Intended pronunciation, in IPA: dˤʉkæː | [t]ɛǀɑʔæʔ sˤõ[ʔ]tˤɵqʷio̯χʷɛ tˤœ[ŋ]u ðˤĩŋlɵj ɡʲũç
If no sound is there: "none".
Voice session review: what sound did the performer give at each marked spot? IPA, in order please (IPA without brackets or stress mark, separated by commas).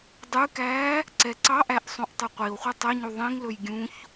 ǀ, ʔ, ɲ